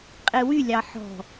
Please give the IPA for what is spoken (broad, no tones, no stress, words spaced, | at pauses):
qʼewy lʲɑħɔ̤